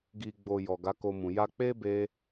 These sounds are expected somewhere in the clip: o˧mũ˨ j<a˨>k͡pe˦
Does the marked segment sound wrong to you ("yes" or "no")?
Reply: yes